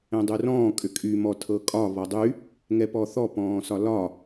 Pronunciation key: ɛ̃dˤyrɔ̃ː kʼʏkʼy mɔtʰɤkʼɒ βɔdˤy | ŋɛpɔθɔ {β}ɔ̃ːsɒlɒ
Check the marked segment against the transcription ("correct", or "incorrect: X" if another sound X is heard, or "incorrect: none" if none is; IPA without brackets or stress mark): incorrect: p